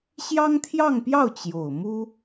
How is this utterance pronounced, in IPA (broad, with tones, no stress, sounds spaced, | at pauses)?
ɕ j ɑ˥ ŋ t̪ʰ j ɑ˥˧ ŋ p j ɑ˥˩ ʊ̯ t͡ɕ j o˨˩ ʊ̯ m u˥